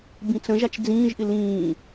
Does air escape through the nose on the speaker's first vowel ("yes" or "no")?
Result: yes